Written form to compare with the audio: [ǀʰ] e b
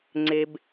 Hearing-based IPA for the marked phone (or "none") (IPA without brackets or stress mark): ŋ͡ǀ